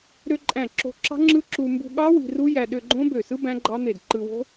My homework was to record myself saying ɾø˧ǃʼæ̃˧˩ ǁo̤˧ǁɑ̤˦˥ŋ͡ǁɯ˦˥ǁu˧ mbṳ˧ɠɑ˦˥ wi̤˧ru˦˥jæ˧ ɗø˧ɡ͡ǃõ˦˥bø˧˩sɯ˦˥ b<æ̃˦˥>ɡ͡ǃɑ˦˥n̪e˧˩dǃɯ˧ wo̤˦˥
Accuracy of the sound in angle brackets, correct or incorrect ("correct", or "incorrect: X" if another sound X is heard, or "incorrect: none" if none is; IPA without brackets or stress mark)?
correct